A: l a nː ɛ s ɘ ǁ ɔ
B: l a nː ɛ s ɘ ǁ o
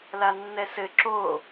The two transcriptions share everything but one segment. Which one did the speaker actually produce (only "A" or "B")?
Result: B